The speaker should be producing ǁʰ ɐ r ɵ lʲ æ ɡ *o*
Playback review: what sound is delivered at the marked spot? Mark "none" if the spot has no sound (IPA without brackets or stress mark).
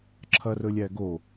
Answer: o